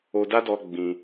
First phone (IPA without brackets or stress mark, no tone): o